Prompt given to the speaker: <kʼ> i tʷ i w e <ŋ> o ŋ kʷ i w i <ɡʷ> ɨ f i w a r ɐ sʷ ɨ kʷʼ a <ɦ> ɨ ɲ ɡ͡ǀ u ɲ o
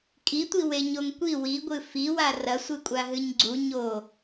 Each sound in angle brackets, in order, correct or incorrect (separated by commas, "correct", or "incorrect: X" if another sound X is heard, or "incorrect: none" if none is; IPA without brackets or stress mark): correct, incorrect: ɲ, correct, correct